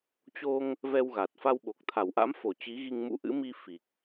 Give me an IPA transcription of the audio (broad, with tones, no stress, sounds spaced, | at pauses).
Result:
t͡ɕ o˧ ŋ | v ɛ˧ w ɣ a˨˩ t̚ f a˧ w ɓ o˨˩ k̚ t̪ʰ a˧˩ w ʔ a̰˧˥ m f o˧˩ t͡ɕ i˨˦ ɣ i˧ ŋ m ṵ˧˥ ʔ ɨ̰˧˥ m i˧ f i˨˩ k̚